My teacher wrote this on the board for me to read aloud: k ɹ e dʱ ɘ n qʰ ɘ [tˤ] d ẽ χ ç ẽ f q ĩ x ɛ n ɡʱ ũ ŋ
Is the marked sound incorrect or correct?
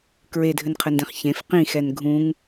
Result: incorrect